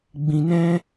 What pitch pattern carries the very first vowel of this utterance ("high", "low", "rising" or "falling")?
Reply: low